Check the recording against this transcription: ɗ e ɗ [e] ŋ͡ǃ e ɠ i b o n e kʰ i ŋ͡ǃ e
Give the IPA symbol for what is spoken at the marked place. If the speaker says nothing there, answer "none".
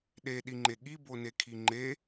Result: i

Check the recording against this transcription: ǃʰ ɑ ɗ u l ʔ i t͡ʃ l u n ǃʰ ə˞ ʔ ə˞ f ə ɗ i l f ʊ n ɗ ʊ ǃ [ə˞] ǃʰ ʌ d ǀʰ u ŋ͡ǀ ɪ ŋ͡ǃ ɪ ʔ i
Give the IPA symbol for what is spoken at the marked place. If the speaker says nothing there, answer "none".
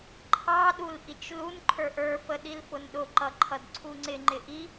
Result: ʌ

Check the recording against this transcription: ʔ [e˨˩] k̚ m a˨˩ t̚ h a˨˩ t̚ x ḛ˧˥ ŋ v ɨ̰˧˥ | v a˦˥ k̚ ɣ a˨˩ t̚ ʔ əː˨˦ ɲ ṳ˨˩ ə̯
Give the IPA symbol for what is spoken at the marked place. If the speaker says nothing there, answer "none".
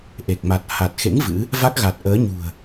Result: e˨˩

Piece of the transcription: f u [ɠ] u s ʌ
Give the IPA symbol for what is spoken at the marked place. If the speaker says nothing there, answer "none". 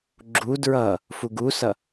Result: ɡ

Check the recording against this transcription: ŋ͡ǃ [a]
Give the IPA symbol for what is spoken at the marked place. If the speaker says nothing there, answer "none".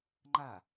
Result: a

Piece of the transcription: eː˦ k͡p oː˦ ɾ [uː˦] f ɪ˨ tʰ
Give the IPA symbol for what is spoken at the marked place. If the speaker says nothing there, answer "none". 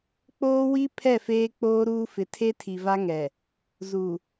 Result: uː˦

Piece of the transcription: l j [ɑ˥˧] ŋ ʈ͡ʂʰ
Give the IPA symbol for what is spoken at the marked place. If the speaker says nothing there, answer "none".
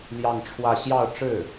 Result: ɑ˥˧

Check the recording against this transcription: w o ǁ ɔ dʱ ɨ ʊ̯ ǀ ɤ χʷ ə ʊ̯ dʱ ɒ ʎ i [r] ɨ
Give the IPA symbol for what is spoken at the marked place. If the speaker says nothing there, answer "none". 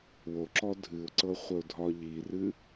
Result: r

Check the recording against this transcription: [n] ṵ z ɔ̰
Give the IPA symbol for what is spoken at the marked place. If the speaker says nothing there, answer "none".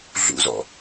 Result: ɮ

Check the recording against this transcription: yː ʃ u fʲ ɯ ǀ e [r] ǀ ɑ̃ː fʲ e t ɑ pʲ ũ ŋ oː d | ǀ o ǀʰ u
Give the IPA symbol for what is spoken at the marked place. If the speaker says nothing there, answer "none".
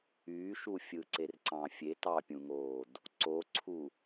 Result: r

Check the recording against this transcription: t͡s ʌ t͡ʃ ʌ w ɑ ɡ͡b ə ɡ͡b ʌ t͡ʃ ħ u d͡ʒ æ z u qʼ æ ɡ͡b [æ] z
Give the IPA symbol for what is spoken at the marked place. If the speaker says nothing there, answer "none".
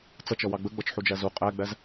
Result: æ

